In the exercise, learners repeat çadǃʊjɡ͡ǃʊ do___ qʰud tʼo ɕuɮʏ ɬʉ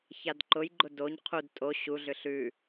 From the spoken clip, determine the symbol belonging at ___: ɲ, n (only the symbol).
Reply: ɲ